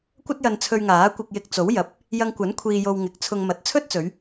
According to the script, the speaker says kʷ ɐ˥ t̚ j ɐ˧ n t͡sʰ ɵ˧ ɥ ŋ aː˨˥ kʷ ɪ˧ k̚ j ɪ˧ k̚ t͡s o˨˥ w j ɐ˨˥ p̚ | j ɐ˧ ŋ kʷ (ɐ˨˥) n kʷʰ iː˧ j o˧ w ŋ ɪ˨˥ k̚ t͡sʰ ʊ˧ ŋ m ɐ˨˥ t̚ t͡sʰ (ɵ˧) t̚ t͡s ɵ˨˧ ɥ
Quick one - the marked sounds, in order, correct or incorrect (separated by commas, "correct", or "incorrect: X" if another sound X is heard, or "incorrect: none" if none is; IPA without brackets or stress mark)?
correct, incorrect: ɵ˥